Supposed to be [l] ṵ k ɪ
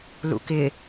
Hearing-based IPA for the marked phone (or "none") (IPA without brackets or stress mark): l